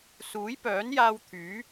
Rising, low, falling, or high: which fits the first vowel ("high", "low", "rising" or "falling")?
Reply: rising